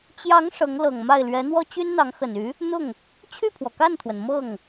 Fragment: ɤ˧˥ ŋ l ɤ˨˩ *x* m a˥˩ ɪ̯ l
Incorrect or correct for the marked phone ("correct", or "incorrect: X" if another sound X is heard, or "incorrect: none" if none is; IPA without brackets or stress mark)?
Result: incorrect: ŋ